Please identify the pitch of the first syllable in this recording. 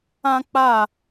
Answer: high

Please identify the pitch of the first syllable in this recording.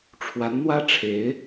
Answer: rising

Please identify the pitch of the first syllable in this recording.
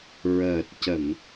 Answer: low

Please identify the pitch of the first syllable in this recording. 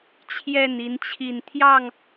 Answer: falling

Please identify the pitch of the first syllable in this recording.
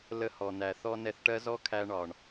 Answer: high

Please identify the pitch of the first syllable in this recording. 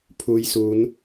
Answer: low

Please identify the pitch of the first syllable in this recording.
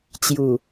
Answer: low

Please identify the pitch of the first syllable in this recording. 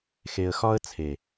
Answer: low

